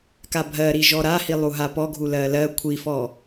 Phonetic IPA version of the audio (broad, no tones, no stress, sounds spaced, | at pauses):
k a bʱ ɜ ɾ i ʒ ɔ ɾ a h i lˠ u ɦ a p ɔ ɡʱ u l ɜ l ɜ kʷʰ i f ɔ